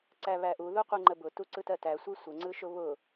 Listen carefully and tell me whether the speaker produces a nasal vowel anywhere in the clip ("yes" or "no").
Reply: no